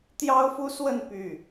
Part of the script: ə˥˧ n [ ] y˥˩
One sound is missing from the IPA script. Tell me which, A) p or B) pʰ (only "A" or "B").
A